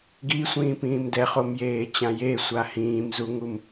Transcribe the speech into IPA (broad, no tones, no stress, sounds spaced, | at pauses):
ɡ i sʷ ĩː p ĩː m d ɛ χ o m j eː t͡ɕ ã j e sʷ a h ĩː m z u ŋ u m